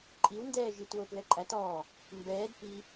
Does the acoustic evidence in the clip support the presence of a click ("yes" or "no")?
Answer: yes